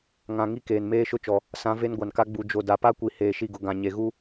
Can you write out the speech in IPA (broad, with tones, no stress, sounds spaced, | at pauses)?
ŋ ã˨ ŋ i˦ k eː˨ n m eː˦ ʃ ʊ˦ t͡ʃ ɔ˨ | s ã˨˦ v e˦ n ɡʷ a˨ n k a˦ ɡ͡b u˨ d͡ʒ o˨ d a˨ p a˦ kʷ i˨ h eː˨ ʃ i˨ ɡ ʊ˨ ɡ ã˨ ɲ e˨ ɣ u˦